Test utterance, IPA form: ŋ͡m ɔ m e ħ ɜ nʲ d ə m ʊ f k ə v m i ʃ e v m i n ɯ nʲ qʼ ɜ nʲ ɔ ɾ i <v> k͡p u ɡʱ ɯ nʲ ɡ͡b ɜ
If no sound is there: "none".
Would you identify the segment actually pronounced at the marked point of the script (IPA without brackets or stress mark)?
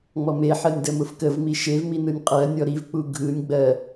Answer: v